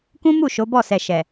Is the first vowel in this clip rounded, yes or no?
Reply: yes